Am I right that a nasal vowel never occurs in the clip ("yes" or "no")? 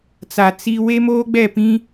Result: no